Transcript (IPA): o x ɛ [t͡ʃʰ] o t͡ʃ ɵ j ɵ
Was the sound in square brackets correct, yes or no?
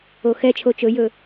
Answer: yes